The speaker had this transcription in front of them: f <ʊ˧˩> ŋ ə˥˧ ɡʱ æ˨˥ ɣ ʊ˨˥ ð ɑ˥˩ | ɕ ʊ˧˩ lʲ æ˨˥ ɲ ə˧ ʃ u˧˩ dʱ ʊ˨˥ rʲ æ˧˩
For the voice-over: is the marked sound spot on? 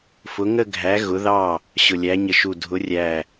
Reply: no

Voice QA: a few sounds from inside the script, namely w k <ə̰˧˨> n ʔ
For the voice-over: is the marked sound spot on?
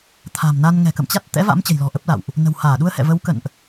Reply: yes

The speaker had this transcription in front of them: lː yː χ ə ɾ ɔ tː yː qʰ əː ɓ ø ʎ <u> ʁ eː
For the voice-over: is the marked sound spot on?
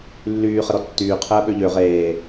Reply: no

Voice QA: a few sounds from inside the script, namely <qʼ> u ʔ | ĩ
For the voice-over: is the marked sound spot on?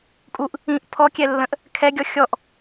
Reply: no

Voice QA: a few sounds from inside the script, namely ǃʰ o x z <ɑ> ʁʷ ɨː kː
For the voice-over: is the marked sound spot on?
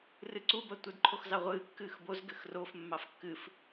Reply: yes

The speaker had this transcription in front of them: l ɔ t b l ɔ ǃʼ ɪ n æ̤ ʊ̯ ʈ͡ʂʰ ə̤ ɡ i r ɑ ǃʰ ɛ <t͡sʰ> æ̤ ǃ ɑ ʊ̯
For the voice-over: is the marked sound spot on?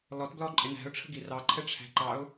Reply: no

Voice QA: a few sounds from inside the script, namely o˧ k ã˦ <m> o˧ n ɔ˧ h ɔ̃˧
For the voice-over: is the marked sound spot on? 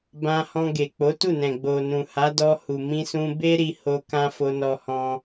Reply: no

